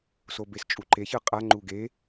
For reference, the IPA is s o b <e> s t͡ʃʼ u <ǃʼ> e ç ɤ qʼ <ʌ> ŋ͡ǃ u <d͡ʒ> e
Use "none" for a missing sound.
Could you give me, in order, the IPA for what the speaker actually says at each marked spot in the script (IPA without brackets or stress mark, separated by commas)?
e, ǃ, a, ɡ